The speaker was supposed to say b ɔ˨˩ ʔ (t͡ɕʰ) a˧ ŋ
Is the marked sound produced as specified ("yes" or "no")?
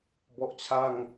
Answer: yes